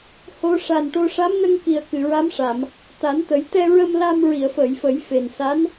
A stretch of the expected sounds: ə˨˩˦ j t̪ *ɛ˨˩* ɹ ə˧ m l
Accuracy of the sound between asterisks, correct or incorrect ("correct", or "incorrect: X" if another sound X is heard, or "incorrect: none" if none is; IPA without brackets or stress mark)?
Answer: incorrect: ɛ˧